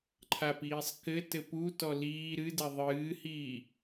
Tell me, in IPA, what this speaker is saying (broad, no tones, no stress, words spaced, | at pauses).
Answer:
ǃʰapiːsˤ kɘ tɘputɔ liː ɾɨdɛ ðˤɨːhiː